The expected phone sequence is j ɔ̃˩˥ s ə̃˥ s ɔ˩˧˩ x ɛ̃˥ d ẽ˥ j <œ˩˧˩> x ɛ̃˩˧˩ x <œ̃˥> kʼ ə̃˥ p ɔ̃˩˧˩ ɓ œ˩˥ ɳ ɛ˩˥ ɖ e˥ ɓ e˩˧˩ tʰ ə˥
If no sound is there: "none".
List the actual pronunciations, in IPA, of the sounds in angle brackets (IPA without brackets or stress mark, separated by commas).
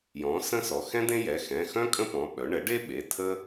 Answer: ɛ˩˧˩, œ̃˥